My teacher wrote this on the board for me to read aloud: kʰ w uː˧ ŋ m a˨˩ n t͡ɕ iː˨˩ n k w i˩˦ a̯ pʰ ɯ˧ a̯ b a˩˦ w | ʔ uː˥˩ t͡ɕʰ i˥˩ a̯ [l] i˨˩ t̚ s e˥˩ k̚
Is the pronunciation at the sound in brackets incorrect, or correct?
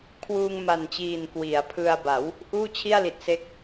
correct